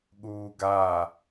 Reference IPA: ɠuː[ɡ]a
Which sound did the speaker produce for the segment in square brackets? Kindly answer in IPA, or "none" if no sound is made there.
ɡ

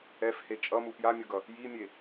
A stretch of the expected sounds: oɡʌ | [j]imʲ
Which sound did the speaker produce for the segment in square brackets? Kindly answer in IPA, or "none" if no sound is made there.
j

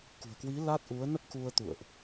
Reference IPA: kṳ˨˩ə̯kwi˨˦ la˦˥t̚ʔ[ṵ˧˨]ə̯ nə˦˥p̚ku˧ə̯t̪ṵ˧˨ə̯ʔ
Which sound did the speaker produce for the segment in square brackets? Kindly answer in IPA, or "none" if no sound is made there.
u˨˦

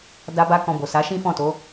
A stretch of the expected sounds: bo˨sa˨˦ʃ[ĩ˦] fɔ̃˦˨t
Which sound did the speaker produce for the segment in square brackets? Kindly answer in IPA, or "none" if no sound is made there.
ĩ˦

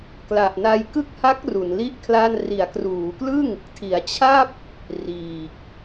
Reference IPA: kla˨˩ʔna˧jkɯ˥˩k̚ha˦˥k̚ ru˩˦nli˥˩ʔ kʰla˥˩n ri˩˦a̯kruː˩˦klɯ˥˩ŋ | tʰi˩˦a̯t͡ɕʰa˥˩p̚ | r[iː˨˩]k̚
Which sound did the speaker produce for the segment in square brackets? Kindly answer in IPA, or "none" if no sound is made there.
iː˨˩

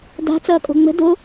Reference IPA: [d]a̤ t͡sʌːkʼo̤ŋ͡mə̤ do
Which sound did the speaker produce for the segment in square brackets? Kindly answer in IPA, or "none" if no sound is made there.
d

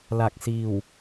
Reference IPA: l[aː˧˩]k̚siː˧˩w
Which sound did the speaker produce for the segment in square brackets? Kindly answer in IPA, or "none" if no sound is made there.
a˧˩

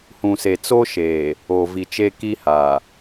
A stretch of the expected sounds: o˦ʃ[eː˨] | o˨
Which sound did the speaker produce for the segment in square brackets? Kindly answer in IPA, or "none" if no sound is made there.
eː˨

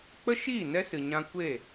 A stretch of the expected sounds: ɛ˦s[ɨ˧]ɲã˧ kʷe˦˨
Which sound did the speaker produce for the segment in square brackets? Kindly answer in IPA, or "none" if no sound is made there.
ɨ˨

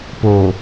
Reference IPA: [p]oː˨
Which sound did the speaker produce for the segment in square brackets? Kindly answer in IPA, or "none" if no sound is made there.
p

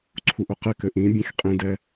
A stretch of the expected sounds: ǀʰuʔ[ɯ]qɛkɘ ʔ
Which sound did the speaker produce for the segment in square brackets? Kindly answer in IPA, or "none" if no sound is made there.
ʊ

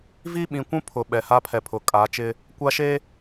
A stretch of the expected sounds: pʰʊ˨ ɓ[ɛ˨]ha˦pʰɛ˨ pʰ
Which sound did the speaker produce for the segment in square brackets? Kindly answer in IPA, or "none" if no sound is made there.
ɛ˨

